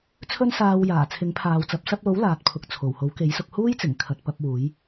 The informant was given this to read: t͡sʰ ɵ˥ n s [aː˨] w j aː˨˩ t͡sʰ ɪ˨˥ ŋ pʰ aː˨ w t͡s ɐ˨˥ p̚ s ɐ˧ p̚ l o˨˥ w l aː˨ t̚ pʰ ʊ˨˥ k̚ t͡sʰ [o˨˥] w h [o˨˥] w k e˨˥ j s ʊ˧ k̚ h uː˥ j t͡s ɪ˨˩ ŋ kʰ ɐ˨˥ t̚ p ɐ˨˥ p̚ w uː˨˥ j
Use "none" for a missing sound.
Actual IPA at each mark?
aː˧, o˨˩, o˨˥

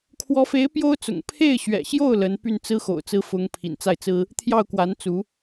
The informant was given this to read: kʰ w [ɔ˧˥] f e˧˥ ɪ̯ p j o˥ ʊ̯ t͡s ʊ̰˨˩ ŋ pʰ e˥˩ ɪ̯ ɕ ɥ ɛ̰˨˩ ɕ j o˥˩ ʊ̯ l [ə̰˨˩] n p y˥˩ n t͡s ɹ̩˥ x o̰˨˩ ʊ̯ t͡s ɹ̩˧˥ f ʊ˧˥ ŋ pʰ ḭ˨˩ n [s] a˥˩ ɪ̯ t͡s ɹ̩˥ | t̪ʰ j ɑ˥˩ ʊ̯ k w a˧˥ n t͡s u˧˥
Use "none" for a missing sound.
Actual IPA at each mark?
ɔ˧˥, ə˧˥, t͡s

